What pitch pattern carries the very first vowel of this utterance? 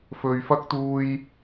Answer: high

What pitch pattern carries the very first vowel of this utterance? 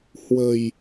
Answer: low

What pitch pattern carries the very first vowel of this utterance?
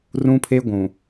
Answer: high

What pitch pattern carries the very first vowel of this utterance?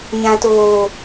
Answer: low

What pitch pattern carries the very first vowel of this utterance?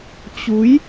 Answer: rising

